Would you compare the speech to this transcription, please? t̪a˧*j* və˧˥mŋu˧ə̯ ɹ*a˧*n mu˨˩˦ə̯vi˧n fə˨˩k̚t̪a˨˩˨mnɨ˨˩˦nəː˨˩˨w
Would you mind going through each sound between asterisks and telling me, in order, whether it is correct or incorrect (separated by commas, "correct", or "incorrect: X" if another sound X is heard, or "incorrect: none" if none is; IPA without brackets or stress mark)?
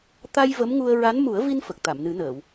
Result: correct, incorrect: a˧˥